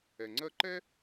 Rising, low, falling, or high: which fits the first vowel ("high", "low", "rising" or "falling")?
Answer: low